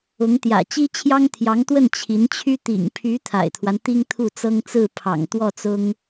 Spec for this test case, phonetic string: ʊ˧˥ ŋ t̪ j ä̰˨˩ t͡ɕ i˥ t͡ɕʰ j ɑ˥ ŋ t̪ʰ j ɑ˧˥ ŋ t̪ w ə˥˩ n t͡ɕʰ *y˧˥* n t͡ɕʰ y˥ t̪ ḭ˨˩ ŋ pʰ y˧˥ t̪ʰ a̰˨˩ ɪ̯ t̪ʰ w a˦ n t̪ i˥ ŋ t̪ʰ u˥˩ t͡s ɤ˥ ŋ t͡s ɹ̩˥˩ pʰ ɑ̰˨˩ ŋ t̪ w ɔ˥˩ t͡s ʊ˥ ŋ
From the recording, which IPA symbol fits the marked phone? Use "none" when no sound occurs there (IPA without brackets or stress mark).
i˧˥